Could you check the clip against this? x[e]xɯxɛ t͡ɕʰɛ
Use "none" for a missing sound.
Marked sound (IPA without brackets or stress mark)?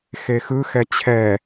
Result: e